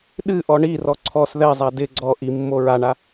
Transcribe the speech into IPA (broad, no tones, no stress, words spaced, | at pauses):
ɗɨʔɔ ɳirɔ ǀʰɔs ðɛzˤa dɪ ɡ͡ǀɔ ʔimːo ɹaɳa